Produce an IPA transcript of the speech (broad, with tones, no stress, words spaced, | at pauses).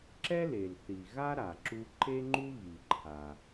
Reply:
ǁɛ˥le˩lθi˩ ɣa˥ ɾa˩ǁu˧ ǃe˥ŋ͡ǃu˥ ɣi˩ǃʰa˩